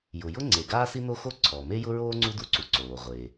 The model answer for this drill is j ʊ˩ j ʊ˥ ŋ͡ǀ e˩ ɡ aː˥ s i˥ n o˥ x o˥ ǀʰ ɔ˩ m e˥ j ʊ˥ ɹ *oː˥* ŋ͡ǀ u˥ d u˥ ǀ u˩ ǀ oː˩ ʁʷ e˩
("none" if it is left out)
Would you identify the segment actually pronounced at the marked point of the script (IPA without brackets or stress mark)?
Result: oː˥